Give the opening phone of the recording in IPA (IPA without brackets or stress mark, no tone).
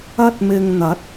ɐ